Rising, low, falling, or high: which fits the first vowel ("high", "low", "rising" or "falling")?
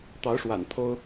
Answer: rising